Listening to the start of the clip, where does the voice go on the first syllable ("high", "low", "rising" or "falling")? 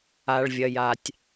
low